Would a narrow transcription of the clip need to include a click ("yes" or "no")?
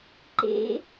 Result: yes